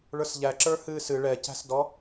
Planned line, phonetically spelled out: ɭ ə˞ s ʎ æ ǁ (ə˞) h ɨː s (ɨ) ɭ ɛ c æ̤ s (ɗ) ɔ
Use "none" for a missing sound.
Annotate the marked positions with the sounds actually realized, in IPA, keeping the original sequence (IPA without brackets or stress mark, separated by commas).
ə˞, ɨ, d